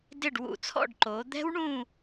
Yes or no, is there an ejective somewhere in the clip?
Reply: no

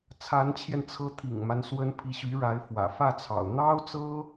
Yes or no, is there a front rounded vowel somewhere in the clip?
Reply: yes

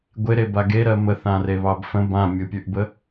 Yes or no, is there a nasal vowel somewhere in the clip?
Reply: yes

